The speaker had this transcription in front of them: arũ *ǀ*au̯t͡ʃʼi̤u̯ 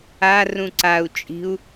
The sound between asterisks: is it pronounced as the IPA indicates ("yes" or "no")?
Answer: yes